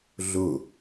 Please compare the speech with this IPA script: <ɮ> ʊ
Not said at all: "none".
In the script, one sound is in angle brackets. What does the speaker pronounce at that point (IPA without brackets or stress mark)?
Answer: ɮ